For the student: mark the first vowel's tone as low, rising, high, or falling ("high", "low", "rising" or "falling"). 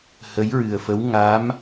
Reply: rising